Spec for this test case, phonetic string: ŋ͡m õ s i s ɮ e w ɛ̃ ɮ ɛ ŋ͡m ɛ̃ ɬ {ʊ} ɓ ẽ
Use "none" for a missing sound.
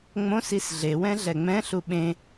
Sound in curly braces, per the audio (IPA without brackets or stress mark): u